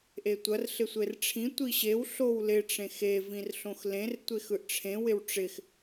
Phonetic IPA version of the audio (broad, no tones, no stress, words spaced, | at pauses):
ʔetʷɐr ɬɪsʷerʈ͡ʂʰĩ tʷiɕew ɬowlɪ ʈ͡ʂẽxe vĩrɬõxlẽr tʷexɯʔʈ͡ʂʰẽ wɪwʈ͡ʂɪx